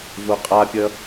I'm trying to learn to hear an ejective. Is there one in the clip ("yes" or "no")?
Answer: yes